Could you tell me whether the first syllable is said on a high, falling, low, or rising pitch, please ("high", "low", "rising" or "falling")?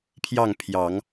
falling